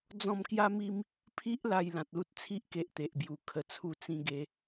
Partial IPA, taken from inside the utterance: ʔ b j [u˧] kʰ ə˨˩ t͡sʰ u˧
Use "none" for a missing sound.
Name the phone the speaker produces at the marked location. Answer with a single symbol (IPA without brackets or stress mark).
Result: u˨˩